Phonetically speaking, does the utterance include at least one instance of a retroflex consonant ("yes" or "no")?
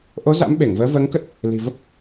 no